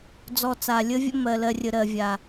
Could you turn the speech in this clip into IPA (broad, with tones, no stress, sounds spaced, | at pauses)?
d͡z ɔ˧ t͡s a˨ lʲ ə˦ vʲ ə̰˦ m ɜ˨ l ɜ˧ rʲ ə˨ ɾ ɜ˨ vʲ a˨